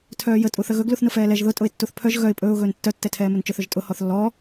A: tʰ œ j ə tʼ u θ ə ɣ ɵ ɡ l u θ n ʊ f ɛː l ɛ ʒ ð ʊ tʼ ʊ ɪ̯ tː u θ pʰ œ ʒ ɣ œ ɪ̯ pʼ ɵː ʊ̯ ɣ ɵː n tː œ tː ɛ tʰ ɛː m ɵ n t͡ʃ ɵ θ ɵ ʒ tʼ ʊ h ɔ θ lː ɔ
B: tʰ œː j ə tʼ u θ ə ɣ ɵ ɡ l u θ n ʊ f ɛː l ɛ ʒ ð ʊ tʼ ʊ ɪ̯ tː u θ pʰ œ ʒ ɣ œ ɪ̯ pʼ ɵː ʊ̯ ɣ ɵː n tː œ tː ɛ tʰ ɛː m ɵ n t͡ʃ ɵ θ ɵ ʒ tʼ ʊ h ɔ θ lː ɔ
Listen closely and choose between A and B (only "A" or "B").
B